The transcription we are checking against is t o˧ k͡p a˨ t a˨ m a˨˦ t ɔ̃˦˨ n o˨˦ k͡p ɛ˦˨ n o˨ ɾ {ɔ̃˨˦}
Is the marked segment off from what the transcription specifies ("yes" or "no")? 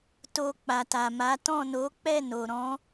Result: no